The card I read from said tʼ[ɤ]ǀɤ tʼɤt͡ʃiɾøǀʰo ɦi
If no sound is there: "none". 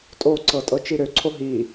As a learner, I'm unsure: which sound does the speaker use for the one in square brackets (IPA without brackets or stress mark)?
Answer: o